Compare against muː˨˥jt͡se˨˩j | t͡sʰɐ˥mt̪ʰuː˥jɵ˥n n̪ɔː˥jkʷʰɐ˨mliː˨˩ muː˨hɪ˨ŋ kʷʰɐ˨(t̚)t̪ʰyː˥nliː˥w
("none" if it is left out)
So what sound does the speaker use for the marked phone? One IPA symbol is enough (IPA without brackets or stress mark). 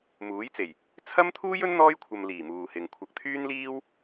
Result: k̚